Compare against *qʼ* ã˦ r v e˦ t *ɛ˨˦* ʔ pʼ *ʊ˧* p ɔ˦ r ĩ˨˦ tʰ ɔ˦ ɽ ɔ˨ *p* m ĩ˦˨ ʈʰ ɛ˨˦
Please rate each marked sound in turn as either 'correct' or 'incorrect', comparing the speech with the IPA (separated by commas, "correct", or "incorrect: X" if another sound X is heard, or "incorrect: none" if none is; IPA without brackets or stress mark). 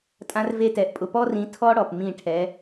incorrect: tʼ, correct, correct, correct